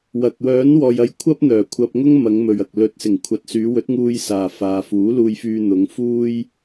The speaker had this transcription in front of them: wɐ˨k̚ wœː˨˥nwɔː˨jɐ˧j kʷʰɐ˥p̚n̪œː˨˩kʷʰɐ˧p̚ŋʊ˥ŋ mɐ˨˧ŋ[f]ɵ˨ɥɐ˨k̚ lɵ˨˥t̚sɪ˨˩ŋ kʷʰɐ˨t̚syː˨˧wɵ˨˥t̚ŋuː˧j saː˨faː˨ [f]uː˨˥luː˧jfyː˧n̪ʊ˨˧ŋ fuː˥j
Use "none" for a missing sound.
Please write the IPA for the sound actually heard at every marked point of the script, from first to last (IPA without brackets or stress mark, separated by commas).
m, f